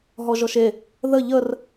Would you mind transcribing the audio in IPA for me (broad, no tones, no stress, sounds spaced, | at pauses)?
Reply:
ɦ ɔ ʒ ɔ ʃ e | ð ə ʎ ə r